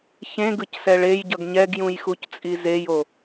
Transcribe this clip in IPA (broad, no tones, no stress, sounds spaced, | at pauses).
ç ẽ ɡ ɯ c s ɛ ɭ e j ɟ ʌ ɡ ɲ ɛ ɡ j ũ j x u c t͡sʼ i z e j o